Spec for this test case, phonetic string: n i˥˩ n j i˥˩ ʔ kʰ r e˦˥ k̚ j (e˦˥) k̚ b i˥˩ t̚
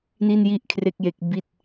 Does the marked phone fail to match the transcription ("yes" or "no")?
no